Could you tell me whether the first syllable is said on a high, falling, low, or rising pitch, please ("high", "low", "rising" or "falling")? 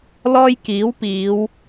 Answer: high